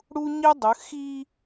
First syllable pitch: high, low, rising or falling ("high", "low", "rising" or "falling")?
high